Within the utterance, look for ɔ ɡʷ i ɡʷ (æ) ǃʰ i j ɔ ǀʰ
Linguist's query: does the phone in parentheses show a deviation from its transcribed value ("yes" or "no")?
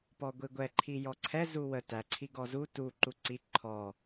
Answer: yes